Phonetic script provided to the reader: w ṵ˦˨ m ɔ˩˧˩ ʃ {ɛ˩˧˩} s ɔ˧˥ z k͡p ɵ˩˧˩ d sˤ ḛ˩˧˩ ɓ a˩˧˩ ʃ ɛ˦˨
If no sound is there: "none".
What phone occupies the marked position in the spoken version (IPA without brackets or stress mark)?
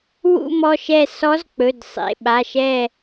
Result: ɛ˦˨